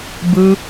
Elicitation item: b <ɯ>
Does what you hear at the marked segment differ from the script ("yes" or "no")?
no